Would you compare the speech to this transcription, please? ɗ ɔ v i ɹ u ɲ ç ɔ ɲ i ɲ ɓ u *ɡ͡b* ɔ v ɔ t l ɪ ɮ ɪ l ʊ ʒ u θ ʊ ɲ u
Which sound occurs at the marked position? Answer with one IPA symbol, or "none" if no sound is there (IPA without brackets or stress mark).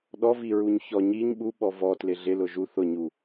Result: ɓ